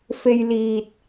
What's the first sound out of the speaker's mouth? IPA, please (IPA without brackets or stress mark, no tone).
f